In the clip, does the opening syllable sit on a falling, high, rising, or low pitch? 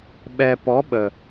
low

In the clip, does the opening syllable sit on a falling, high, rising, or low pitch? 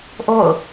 falling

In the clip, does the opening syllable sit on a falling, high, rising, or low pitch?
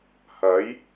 rising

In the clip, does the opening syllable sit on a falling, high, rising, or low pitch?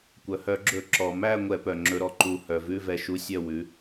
low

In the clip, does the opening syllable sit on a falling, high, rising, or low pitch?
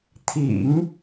low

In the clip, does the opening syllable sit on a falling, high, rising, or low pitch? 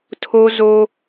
high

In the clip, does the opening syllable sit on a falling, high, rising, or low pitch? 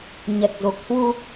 low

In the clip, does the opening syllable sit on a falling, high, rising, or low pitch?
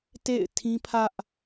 falling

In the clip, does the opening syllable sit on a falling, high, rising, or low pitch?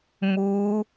rising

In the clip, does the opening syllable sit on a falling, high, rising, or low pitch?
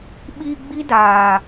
low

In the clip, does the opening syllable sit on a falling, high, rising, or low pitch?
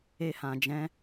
high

